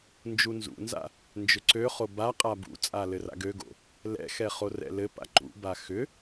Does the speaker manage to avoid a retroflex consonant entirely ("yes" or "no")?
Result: yes